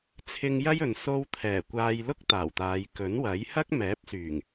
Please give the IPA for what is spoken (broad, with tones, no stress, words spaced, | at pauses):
t͡sʰɪ˧ŋ jɐ˥jɵ˨n so˧wt̪ʰɛː˨˩ kʷaː˧jlʊ˥k̚t̪aː˨˩wt̪aː˨˧j kɵ˨˥nwɐ˨˥j hɐ˥k̚mɛː˨˥p̚syː˨˩ŋ